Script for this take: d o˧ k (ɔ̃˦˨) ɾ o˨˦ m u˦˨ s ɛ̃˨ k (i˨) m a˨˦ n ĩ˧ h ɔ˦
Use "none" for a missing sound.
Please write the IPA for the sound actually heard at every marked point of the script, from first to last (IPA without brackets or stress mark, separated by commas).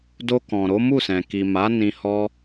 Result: ɔ̃˨, i˨